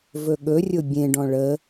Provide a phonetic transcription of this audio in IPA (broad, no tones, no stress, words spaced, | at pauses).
vɵɠɵrʲʊ bʲẽɖɔ̃ ɭə